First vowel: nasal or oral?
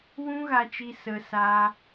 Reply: nasal